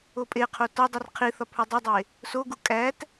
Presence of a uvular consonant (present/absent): present